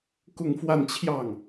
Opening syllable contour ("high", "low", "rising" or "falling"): falling